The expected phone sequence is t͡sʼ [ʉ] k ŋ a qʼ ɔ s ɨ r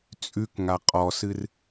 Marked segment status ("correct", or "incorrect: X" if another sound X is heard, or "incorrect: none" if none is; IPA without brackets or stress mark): correct